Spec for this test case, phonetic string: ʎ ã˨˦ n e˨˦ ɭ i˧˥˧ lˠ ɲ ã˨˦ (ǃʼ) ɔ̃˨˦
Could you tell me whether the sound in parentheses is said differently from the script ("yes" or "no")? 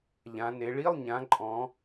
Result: no